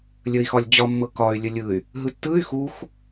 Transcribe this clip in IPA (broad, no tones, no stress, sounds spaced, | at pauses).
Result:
lʲ ə i̯ x ɒ lʲ d͡ʑ ɒ mː ɤ k ɒ y̯ lʲ ə lʲ ɯ y̯ | ɦ ɯ tː ɯ y̯ x u x